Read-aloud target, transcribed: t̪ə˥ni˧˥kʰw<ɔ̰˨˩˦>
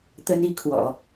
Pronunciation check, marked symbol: correct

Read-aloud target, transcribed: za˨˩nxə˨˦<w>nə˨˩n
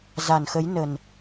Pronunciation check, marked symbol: incorrect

